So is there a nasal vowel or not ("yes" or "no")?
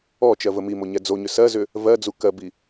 no